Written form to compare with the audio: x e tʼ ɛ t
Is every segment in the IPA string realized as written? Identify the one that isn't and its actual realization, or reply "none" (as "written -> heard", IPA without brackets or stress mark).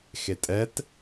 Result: none